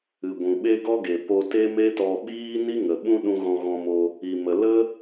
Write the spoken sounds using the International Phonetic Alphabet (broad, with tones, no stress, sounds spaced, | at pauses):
ɨ˨ ɡʷ ũ˨ ɓ e˦ ɡ ɔ˦ ɡ e˨ p o˧ t e˦ m e˦ t ɔ˧ ɓ iː˦ n i˦ ŋ ə˨ ɓ ũ˦ ɗ ũ˧ ɣ ɔ̃˧ ɣ ɔ̃˧ m o˧ | i˨ m ə˨ l ə˦